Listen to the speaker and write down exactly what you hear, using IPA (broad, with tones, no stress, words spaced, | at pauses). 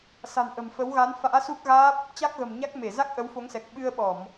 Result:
sa̤˨˩nʔə̤˨˩mfə˨˦w ɣa˨˦nfa̰ː˧˥su˦˥k̚ ɣaː˦˥p̚ | t͡ɕa˦˥k̚ɣə̤˨˩mɲa˦˥k̚ me˧˩ za˦˥k̚ʔə˨˦wfo˨˦ŋsɛ˨˩k̚ ɓɨ˧ə̯ɓɔ˧˩˨m